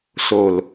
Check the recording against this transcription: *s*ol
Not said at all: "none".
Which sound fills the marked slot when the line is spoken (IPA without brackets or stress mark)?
s